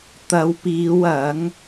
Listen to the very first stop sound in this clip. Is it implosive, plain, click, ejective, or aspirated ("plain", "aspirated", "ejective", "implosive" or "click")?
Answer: plain